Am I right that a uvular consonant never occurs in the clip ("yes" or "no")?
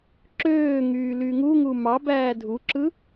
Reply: yes